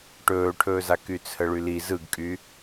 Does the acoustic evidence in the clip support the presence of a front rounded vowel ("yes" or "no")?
yes